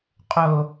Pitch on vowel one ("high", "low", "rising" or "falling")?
high